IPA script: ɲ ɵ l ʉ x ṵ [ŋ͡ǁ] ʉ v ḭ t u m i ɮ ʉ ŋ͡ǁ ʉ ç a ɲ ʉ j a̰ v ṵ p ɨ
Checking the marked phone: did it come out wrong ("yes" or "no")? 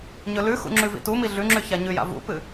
no